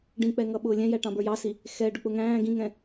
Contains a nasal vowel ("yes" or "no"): yes